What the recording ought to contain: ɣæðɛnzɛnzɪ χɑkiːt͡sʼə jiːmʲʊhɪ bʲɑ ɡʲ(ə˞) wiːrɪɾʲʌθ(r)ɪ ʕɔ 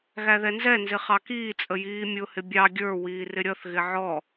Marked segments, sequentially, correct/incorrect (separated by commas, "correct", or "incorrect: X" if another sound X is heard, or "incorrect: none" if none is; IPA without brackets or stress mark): correct, incorrect: ɣ